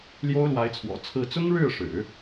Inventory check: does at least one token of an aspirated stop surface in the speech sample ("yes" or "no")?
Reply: yes